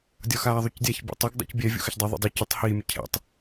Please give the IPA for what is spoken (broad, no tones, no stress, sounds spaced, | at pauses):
dʲ ɒ x aː ðˤ u c dʲ a ç bʲ ḛ tˤ y ɡ dˤ ṵ c bʲ ɛ vʲ ṵ x ə ç dˤ ɛ ðˤ ḛ dˤ y c ə tˤ h iː mʲ ə cʰ ɛ̰ tˤ